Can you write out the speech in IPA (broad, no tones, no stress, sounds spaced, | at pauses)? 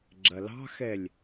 ɡ͡ǁ ɐ l ɑ̤ x ɛ lʲ